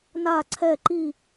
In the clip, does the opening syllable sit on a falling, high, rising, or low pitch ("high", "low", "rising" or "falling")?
falling